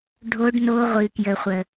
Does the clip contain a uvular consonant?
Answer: yes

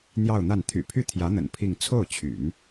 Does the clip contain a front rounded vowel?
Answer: yes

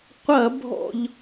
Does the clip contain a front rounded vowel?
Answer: no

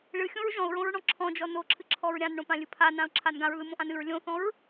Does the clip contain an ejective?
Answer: no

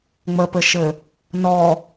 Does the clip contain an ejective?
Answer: no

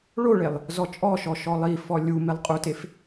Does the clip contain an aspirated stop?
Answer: no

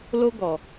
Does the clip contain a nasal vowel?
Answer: no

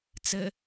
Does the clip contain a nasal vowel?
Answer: no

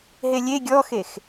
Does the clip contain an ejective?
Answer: no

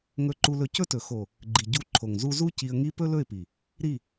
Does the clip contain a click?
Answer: yes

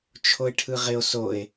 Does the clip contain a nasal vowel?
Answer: no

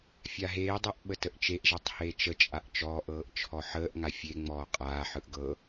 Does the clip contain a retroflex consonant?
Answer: no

